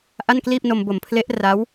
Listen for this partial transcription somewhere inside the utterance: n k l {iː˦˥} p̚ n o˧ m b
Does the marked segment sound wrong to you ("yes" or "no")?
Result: yes